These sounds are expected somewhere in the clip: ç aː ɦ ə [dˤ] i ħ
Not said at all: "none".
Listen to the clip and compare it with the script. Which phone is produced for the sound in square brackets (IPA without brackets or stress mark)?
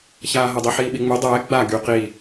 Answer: dˤ